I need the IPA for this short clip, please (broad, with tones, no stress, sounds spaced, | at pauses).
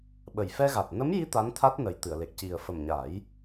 ɓ ə˨˩ j f ɛ˧ ɣ a˨˩ t̚ n ə˧˥ m j i˧˥ t̪ a˧˥ n t̪ʰ a˦˥ t̚ n ə˨˩ j t̪ ɨ˨˩˨ ə̯ l e˨˩ k̚ c i˨˩ ə̯ f ə˨˩ m ɲ a˨˩˦ j